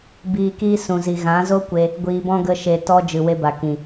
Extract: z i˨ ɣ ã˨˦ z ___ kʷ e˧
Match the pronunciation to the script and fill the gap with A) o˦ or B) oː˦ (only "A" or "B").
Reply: A